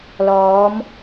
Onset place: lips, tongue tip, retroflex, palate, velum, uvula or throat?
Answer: tongue tip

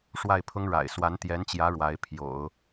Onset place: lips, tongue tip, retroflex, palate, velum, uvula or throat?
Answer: retroflex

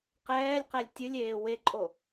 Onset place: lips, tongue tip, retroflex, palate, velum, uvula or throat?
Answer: uvula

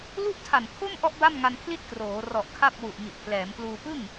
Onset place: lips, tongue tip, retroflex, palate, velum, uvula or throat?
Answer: tongue tip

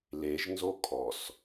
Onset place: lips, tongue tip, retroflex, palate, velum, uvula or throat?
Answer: tongue tip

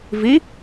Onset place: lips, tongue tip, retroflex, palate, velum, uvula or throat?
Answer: lips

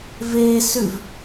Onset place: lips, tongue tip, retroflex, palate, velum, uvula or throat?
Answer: lips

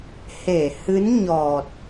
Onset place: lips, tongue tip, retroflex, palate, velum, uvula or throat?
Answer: throat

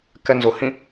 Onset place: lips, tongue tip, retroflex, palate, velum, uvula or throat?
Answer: velum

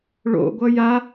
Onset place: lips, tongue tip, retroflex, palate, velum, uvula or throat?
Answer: retroflex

